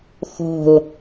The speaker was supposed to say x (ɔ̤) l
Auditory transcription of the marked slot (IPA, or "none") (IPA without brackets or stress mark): ɔ̤